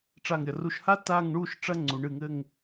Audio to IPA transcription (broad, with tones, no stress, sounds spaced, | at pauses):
ʈ͡ʂ a˧˩ ŋ ɾʲ ɐ˩ r u˧˩ ʃ h a˥ t a˥˧ ŋ ɳ u˥˧ ʃ ʈ͡ʂ ɐ˥ ŋ͡ǀ u˩˧ ɳ ɨ˧˩ ŋ ɘ˥˧ ŋ